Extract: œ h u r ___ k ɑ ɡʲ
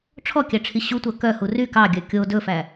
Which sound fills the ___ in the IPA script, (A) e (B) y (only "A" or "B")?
B